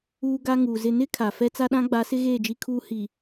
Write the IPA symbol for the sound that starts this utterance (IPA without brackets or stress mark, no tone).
uː